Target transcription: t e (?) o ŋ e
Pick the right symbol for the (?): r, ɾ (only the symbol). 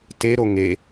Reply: ɾ